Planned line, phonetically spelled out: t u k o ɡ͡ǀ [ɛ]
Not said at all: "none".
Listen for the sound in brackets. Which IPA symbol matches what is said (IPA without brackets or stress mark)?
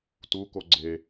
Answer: e